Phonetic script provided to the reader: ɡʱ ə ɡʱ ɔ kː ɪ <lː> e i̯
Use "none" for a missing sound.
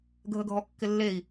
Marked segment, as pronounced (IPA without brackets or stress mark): lː